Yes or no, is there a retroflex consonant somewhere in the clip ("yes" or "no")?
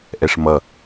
yes